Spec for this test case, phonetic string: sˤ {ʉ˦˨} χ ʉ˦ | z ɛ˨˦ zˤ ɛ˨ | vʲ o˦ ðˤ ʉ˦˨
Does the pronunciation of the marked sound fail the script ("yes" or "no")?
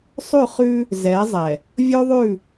no